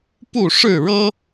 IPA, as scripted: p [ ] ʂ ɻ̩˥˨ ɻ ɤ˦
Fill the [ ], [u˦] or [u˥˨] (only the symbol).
u˥˨